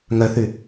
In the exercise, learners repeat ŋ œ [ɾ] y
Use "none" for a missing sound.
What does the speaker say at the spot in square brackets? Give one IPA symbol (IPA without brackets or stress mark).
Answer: θ